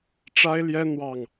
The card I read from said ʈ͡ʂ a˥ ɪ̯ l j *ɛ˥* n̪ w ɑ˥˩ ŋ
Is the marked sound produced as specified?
yes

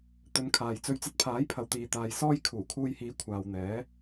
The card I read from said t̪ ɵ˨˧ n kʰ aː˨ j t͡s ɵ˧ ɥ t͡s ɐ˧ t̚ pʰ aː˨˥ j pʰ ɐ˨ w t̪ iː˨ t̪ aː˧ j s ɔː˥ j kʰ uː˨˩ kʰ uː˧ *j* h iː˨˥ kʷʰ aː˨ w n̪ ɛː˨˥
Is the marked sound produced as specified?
yes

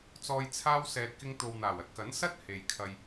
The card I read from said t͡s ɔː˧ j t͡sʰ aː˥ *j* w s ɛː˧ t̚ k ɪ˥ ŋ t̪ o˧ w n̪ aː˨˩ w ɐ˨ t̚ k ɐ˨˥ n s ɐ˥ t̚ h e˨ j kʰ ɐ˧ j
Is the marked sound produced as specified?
no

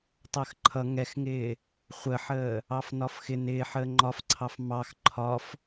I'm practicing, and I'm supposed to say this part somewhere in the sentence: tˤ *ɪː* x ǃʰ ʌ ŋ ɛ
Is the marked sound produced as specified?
no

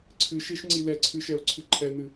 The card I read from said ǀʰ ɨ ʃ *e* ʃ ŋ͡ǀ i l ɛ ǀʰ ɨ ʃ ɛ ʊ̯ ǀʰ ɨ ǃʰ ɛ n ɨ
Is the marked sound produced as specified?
yes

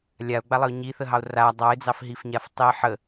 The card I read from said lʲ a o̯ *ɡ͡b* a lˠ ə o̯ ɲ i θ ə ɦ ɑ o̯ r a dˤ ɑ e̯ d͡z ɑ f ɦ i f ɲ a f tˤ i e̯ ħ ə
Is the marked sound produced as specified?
yes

